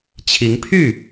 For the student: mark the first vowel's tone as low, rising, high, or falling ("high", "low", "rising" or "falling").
rising